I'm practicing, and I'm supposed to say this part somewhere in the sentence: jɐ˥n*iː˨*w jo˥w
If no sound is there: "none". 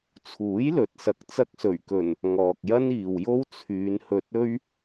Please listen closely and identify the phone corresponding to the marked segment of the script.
iː˨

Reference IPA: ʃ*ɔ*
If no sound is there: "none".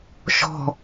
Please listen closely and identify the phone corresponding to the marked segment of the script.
ɔ̤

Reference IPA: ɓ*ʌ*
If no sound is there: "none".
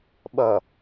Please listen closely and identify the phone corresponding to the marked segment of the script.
ʌ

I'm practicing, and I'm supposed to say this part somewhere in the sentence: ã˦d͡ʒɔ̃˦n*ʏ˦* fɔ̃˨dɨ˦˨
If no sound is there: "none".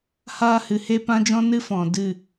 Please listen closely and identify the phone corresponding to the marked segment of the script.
ɨ˦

